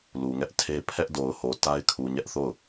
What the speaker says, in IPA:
lu˨ŋɛ˦ʔtʰe˦ pʰɛ˦ʔdo˨ʊ̯ho˨ ta˦ɪ̯kʰu˨ ɲɛ˦ʔθo˦˨ʊ̯

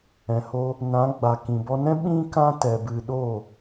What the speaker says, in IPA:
ɛ̃˨ho˧ | nã˨˦ɡ͡ba˨ kĩ˨bɔ˧nɛ̃˦ ɓĩ˦kã˦ tɛ˧bɨ˧ ɗo˦˨

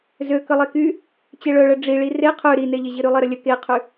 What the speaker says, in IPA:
zøkəlˠeky | t͡ɕeɭœɭə ɖ͡ʐi ɭire qʰø ɾineʎeʑi ɾylˠeɾəlʲə keqʰy

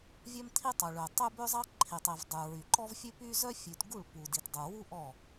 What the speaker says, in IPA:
vʲœ˦mt̪ʰi˦tˤu˨ɭø˨ tˤø˦bø˦zˤɑ˦ ǃʰi˨tˤi˨vdˤʉ˨ɹy˨ ǃɔ˦vfʲʉ˦py˦ zœ˦fʲʉ˨tɡu˦˨ɭ pu˨di˨tdˤu˨ wu˦ ʔɔ˦˨

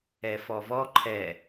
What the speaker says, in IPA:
ɛfɔvɔ ǃʰɛ

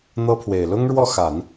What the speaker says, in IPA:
n̪ɤ˥pʰwe˨˩ɪ̯ lʊ˥ŋɻwɔ˥˩xa˨˩˦n

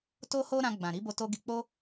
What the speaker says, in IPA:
to˦ho˦ɾã˧ɡ͡bã˨ ɾi˨˦bo˧to˧ ɡi˧k͡po˦

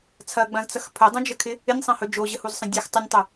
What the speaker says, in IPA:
t͡sʰɐɡ͡bɐ̃zt͡sɐx pʰɵdˤũd͡ʒəkʰɪ | ɪnʲsˤɐ̃hɵ d͡ʒoʑəhuzsˤɐ̃ dʲɐx tˤɪnʲtˤɵ

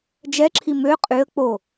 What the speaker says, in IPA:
d͡ʒɛǁʰi mø qʼyə̯ k͡po

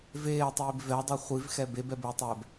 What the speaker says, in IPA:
veːtˤiːb vɛdˤɛ χʷivxɛ bebɛbɘːtˤɛːb

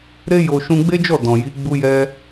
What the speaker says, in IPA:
ɾe˦jo˧ ʃũ˧ɡ͡be˦d͡ʒɔ˦˨ dɔ̃˨ji˨˦ ɡ͡bu˦jɛ˦

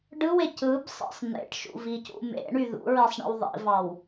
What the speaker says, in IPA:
ɖɯwe cɯbsˤḭsˤ n̪ḛʈʃṵvicṵ mḛɳy ðṵɹesˤɳḭw ðˤḭvɑw

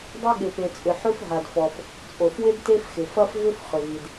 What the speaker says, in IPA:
dˤa˥ɠɪ˩pe˩t͡sʼʏ˩ ħʏ˥f ɦa˩dfɔ˩f | t͡sʼo˩fwɪ˥d te˥fxɪ˩ fɐ˥fvʏ˥f χʏ˩vi˩d

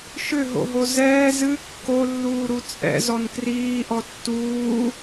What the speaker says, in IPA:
ʃʏɦo̰ɦo zɛː zɨ kːolːuːɾu t͡sʼɛ̰zɔn kriːʔɔ tːuː

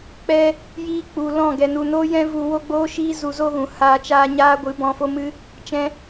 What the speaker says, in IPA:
k͡pɛ˧ | jiː˦k͡pu˨lɔ̃˦˨ ɡɛ˨nu˨noː˦ jɛ̃˦vu˧ wo˦ɡ͡boː˦ʃiː˦ zu˧zo˦ɣũ˨ haː˧t͡ʃaː˧ ɲaː˦ɡʷɨ˨˦ bɔ̃˧fo˦mɨ˦ | t͡ʃɛ̃˧

